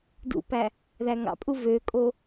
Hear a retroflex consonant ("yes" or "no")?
no